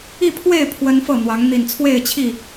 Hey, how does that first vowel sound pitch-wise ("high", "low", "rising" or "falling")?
falling